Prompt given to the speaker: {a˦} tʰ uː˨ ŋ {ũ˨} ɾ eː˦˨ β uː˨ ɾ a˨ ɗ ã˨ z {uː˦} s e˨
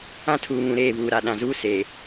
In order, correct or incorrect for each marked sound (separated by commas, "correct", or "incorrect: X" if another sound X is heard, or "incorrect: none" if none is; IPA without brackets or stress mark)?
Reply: incorrect: ã˦, correct, correct